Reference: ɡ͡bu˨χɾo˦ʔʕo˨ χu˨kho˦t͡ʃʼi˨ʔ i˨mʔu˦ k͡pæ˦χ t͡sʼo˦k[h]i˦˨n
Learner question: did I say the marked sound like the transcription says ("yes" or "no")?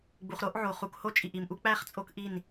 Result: no